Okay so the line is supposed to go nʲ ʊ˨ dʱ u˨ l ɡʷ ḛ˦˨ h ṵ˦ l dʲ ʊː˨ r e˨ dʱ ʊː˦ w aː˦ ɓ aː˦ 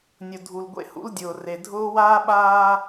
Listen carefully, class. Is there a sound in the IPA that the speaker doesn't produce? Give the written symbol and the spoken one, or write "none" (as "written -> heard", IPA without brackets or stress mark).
none